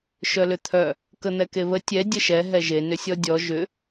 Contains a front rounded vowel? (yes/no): yes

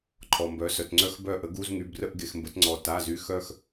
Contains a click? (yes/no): yes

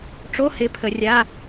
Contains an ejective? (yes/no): no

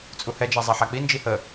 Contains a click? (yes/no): no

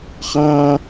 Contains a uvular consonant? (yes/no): yes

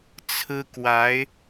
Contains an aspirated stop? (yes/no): yes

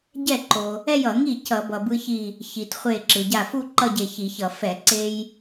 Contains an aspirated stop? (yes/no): no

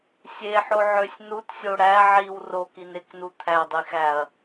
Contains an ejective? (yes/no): no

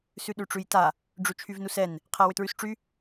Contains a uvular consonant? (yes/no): yes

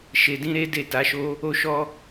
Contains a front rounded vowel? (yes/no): no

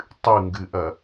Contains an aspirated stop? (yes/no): no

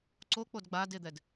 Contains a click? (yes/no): yes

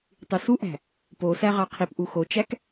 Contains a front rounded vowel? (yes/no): yes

